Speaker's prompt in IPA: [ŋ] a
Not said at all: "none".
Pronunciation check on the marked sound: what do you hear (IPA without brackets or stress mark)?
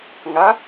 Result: ŋ